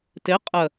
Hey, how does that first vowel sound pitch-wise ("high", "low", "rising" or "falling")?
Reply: rising